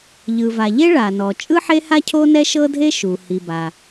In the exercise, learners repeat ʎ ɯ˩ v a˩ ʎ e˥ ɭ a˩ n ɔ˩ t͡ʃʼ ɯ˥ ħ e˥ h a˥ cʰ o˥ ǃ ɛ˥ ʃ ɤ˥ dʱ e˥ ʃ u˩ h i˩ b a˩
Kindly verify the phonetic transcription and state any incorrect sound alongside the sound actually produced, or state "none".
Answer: ǃ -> n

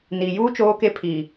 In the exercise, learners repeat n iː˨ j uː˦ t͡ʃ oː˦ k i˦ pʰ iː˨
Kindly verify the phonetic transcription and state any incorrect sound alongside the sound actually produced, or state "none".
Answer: i˦ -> e˦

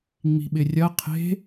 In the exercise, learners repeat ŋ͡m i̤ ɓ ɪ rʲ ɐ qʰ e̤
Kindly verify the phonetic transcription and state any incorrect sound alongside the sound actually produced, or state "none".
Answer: none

